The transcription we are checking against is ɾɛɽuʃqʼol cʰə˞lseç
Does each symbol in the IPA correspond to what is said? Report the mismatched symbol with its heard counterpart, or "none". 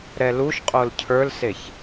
ɽ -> l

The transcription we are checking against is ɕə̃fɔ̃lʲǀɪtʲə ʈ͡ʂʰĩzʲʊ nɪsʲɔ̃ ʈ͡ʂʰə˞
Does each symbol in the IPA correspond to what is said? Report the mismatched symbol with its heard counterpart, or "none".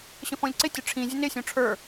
none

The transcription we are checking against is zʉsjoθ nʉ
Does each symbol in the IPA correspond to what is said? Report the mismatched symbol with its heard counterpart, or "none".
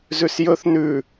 o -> ɵ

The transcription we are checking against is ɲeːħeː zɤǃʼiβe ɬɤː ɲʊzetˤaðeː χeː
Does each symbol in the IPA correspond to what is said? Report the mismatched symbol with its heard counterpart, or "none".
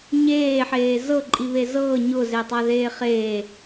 ɬ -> z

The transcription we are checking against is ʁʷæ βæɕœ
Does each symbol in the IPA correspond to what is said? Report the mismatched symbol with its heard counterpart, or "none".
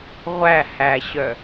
β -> h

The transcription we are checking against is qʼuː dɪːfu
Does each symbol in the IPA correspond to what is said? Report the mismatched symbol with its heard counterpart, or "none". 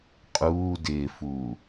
u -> uː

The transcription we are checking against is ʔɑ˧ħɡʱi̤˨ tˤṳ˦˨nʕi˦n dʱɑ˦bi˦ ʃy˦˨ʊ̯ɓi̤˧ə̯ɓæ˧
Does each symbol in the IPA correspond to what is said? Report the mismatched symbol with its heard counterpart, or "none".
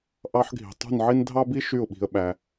none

